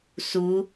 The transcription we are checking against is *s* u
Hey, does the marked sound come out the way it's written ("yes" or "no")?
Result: yes